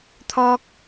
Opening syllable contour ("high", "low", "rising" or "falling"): high